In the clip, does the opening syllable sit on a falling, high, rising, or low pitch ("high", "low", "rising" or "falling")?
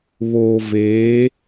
low